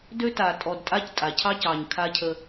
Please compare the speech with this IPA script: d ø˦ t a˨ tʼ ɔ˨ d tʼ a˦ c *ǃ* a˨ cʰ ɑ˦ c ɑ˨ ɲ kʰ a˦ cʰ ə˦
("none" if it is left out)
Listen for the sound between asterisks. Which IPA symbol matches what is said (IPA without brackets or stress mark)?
tʼ